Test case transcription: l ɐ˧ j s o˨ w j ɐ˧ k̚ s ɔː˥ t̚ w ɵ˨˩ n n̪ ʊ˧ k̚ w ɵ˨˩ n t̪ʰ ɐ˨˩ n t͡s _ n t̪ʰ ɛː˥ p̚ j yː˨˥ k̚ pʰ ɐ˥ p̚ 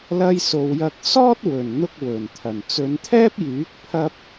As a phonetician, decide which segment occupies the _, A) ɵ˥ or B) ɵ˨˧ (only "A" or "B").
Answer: B